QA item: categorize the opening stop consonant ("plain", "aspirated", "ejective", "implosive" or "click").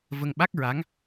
implosive